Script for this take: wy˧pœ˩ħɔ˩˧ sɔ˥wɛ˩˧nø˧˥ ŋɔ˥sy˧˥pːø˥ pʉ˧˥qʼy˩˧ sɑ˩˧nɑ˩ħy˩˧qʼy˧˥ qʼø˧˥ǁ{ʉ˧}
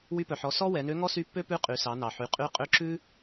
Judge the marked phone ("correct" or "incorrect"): incorrect